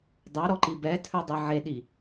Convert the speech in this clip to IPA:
dˤ ɑ ɾ ɔ ǃ i b ɛ tʰ œ dˤ e ʕ e ɗ i

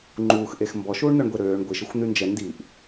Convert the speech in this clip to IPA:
ŋ͡ǃ uː x ʔ e x m b ɔ ʃ uː ɳ n̪ œ ɳ ɡʷ e ɾ øː ɳ ɡʷ i ʃ ə xʷ n̪ y n d͡ʒ ɛ n d i ʔ

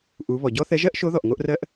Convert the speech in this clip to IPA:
ʔ u˩˧ β ɔ˩ ɟ ɔ˥ θ ɛ˧˥ ʒ ɜ˥ ʔ ʃ o˧˥ ð ɔ˩ ʔ ŋ o˧ ʔ r ɜ˧ ʔ

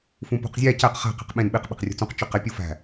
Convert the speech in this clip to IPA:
f ũ p ṳ q zʲ æ c æ q χ æ̤ q e̤ q ɓ ẽ n ɓ i q ɓ i̤ q rʲ ṳ t͡s ũ q t͡ʃ o q e pʲ u f æ̤

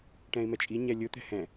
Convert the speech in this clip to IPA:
ʈ ɛ̃ ɪ̯ m ɛ t͡ʃʼ i ɲ ɛ lʲ ʊ t̪ ɛ̤ h ɛ̃

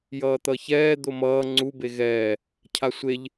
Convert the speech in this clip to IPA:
j ʌː t̪ ʌ ç ɛː d̪ o m ʌː ŋ͡ǀ u b e ɣ ɛː | cʰ a sʷ e ʎ

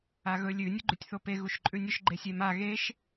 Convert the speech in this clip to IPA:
a ɣ ɵ lʲ ʉ nʲ u ɡ͡ǃ ʉ tʲ θ o p e ɣ u ʃ ǃʼ ʉ nʲ ɵ ʃ ɡ͡ǃ e sʲ e m a ɣ e ʃ

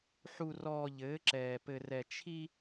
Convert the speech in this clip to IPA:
ħ u˨ r ɔː˨ ʎ ɘː˨˦ ǁ ɛː˨ p ɘ˨ r ɛ˨ t͡ʃʰ i˦

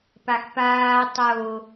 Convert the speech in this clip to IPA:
p a x p aː tˤ o

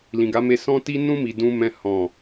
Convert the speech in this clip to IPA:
l ĩ˨ ɡ a˨˦ m e˧ s ɔ̃˧ t i˧ n ũ˧ m i˨ d ũ˧ m ɛ̃˧ h ɔ̃˨

